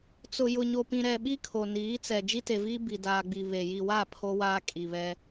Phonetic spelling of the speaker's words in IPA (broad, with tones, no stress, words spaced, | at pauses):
t͡sʊ˨ jʊ˨ɲo˨pĩ˨ɾɛ˨ ɓi˦kʰo˨niː˨˦ t͡sɛ˨ d͡ʒi˦te˨viː˦ bi˨daː˨ɡ͡bi˨ βe˨ ji˨wa˦˨ pʰo˦waː˦ kʼi˨βɛ˦